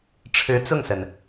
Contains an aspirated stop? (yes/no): yes